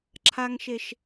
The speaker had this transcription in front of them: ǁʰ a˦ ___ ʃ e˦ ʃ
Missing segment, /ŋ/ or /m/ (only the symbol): ŋ